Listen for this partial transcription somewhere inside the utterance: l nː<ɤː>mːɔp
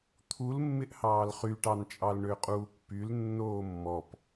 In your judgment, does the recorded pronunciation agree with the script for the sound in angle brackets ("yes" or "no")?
no